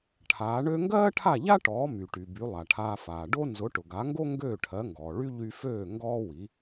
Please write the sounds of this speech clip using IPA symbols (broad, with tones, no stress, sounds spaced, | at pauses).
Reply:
ʈʰ aː˩˥ ɳ ø˥ ŋ ɡ ɜː˥ ʈʰ a˥˩ ʎ a˥ ʈ ɔː˩˥ m y˩ ʈ y˩ b y˩˥ lˠ a˩ ʈʰ aː˧ f aː˩ ɖ o˥ n z ʊ˩˥ ʈ ʊ˩ ɡ a˩˥ ŋ ɡ o˥ ŋ ɡ øː˥˩ ʈʰ ɜ˩˥ ŋ ɡ ɔː˩ ɭ y˥ ʎ y˧ f øː˥˩ ŋ ɡ ɔː˥ w i˩˥